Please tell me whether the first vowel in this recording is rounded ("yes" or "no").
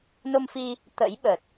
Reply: yes